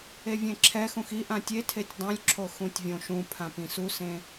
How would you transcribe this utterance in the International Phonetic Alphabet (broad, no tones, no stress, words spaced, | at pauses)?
evʲẽǁʰɛxũx i ʔãtʲetʰetʲ dˤõlʲǁʰo xũtʲvʲõʃũpʰã pĩsusẽ